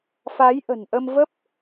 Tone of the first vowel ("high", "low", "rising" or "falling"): rising